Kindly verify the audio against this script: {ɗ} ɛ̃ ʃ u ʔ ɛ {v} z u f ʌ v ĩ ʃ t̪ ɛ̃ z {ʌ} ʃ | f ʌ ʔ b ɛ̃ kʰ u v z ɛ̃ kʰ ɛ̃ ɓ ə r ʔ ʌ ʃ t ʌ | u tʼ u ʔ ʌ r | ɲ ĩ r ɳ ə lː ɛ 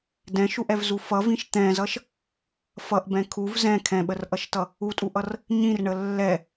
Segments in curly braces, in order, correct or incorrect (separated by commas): incorrect, correct, correct